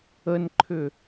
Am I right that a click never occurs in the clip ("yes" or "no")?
no